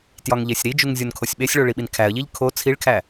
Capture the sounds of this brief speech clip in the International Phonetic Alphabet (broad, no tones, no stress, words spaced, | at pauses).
tjɒŋʎesʲɾid͡ʒuŋ zʲonkʰosʲɓesʲɭo ɭiɓinkʰæə̯ʎiʎ kʰo t͡sʰiɭkʰæ